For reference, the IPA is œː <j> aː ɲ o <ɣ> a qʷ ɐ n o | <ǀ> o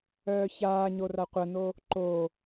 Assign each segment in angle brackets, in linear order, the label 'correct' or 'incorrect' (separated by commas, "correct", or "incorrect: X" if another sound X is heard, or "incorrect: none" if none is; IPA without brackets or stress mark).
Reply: incorrect: ç, incorrect: r, incorrect: ǃ